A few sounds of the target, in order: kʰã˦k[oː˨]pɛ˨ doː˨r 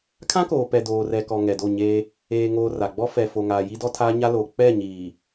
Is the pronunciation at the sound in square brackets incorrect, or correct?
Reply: correct